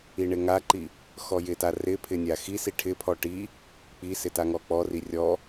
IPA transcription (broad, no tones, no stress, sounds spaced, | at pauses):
i ɳ ɪ ŋ a ǃ i | x ɔ j ɪ t a r ɪ pʰ ɪ nʲ a x i s i ʈʰ ɪ pʰ ɔ ʈ i | k͡p i s ɪ t a ŋ ɔ k͡p ɔ r i rʲ ɔ